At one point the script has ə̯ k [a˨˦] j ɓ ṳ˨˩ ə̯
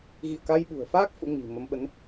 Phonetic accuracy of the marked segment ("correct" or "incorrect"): incorrect